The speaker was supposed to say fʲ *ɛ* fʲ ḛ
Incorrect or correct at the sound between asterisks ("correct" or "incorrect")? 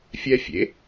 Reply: correct